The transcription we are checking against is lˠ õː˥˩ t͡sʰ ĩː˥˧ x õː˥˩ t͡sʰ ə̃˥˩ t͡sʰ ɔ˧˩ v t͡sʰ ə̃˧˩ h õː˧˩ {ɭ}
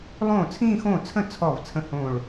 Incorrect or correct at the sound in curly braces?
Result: correct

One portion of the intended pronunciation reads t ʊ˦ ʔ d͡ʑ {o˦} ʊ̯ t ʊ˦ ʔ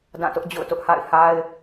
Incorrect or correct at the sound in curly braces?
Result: incorrect: o̰˦˨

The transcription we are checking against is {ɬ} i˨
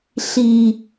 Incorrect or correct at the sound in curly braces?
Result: correct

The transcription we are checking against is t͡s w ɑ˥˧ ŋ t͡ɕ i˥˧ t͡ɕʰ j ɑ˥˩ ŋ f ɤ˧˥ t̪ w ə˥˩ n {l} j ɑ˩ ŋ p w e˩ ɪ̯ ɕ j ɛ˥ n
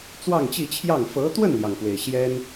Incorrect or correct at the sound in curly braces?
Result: correct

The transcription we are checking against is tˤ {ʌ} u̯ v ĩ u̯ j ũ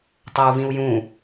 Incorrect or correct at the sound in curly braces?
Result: correct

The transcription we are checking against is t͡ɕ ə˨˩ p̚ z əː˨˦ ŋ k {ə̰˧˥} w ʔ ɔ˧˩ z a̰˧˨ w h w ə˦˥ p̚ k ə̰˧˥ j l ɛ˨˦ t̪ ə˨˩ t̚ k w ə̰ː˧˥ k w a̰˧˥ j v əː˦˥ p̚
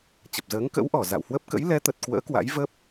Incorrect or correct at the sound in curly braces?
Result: correct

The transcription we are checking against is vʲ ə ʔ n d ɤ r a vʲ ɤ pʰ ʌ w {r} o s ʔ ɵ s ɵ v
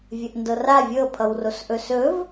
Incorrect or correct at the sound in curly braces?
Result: correct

